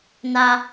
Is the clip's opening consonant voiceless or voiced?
voiced